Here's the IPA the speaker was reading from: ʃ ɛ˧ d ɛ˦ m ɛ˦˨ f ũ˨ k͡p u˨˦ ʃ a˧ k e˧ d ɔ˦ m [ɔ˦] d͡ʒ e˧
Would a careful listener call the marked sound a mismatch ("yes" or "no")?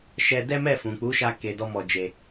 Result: yes